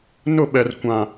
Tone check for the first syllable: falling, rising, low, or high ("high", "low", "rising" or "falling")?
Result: falling